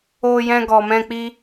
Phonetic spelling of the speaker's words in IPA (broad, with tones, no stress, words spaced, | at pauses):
o˧jɛ̃˧ɡɔ˨mɛ̃˧ k͡pi˧